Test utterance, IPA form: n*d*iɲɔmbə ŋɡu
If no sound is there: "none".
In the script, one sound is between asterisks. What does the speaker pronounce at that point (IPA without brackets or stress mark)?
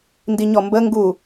d